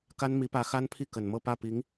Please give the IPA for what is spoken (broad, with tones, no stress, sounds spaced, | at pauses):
k a˥ n m i˧˥ p ä˧˥ x a˥ n pʰ i˥˩ k ə˨˩ n m ɤ˥˧ p ä˥˩ p i˧˥ ŋ